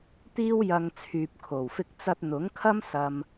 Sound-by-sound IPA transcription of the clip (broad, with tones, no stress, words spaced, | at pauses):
t̪iː˥wjɐ˧ŋ t͡sʰyː˨p̚kʰo˨˩wfɪ˥k̚ t͡sɐ˧t̚n̪ʊ˨˥ŋkʰɐ˥m sɐ˧m